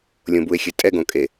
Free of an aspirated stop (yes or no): yes